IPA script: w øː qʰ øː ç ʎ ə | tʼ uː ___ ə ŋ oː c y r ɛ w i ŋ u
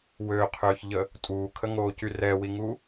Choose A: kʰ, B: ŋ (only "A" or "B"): A